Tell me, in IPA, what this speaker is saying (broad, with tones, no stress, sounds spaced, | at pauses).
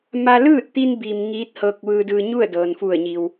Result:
m a˧ l ɯː˥˨ t̚ t̪ i˧ n b i˩ m ŋ iː˧˥ t̚ h ɤː˧ k̚ ʋ ɯː˧ d ɯː˧ ɲ u˥˨ ə̯ d ɤː˩ n f u˧˩ ə̯ ɲ i˩ w